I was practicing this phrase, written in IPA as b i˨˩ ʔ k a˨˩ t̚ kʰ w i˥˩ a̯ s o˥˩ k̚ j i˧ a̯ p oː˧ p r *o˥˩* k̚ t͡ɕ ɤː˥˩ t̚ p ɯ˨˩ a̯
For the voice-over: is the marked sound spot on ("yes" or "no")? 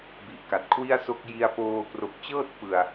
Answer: no